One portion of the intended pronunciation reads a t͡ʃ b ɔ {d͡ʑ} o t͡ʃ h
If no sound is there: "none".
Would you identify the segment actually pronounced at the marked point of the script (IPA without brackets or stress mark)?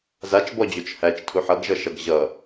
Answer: d͡ʑ